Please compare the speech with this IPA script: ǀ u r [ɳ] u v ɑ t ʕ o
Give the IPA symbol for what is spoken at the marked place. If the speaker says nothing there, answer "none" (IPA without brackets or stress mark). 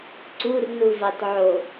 n